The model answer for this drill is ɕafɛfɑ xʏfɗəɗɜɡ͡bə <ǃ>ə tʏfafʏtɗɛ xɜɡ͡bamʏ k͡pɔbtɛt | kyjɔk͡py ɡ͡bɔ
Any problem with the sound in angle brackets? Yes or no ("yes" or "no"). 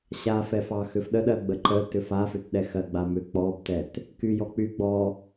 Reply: no